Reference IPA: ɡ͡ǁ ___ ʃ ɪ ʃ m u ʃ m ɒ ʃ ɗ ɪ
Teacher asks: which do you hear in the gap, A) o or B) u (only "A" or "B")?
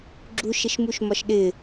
B